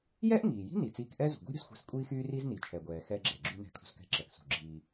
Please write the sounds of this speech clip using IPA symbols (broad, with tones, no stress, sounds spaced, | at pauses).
j ɛ˥ ʔ ŋ iː˩ j i̤˥ n i˩ t͡s iː˧ k ʔ ɛ˥ z ṳ˩ ɡʷ i̤˥ ɾʲ ṳ˧ s xʷ ɛ̤˧ s kʷʼ iː˥ x yː˥ r i˥ z n i˩ t͡ʃʰ ɛ˩ ɡʷ ɛː˩ x ɛ˧ ɡ͡ǁ ɛ˩ ɡ͡ǁ y˧ n ɛ̤˧ kʰ ṳ˧ s k ɛ̤˧ ǁ ɛ˩ k s ṳ˩ ɡ͡ǁ iː˧